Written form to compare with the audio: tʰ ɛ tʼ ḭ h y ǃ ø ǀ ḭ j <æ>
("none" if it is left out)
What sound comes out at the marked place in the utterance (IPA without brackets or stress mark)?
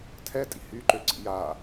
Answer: a